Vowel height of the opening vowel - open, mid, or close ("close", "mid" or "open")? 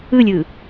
close